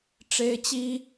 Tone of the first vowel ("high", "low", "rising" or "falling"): high